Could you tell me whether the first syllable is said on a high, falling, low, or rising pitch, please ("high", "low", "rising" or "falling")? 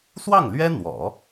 falling